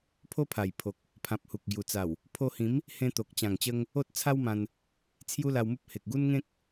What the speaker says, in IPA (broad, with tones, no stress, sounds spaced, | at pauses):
pʰ o˦ pʰ a˨˩ j pʰ o˨ k̚ | pʰ ã˨ p̚ h u˨ k̚ ɡ j u˨˩ t͡s a˨˩ w | pʰ o˧ h ĩ˨˦ m | h ẽ˧ t̪ o˨ k̚ t͡ɕ ã˨˩ ŋ t͡ɕ ə˧ ŋ | o˦ t̚ t͡sʰ a˦ w m ã˧ n | t͡sʰ j u˦ l a˧ w m u˦ p̚ h e˨ k̚ ɡ u˦ n ŋ ẽ˦ k̚